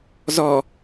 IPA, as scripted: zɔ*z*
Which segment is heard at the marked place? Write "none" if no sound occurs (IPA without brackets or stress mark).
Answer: none